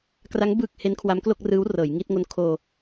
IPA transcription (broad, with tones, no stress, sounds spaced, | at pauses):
k r a˦˥ ŋ b ɯː˨˩ k̚ h e˦˥ n kʰ w a˦˥ m k l o˥˩ k̚ r ɯː˦˥ w r ɤː˩˦ j ŋ i˦˥ t̚ ŋ o˦˥ n kʰ oː˧